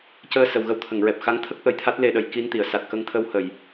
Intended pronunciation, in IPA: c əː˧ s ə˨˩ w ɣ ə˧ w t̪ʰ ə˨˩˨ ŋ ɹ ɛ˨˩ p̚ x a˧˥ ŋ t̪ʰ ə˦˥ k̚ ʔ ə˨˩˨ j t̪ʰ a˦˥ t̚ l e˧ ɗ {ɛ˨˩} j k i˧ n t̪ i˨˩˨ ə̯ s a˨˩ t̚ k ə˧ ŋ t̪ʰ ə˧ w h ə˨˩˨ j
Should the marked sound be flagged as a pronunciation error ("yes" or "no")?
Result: yes